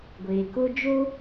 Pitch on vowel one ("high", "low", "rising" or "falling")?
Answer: low